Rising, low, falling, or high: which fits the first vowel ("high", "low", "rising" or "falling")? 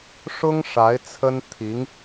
high